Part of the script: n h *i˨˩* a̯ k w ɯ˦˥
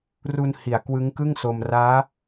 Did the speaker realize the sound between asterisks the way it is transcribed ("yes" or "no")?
yes